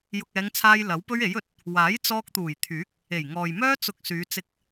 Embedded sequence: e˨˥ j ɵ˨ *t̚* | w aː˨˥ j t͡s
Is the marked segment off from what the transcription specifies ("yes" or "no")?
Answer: no